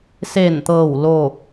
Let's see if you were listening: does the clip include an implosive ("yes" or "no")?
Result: no